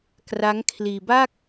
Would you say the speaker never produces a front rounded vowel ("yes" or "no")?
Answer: yes